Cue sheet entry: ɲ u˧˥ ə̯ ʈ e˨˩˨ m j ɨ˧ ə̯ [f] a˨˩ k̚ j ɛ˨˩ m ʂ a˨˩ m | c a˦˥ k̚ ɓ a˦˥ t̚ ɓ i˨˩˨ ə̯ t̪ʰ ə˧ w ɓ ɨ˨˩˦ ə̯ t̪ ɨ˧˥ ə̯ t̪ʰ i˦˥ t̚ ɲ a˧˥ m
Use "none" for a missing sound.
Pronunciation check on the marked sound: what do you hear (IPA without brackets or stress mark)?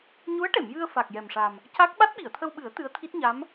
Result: f